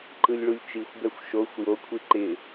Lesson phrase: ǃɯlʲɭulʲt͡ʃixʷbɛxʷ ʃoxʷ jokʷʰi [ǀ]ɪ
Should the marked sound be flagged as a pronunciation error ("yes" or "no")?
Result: yes